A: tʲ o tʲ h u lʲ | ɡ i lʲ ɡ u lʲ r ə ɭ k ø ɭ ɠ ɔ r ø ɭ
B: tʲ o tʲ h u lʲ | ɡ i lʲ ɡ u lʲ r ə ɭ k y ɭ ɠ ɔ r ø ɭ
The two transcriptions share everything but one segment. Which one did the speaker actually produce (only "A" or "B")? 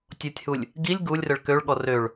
A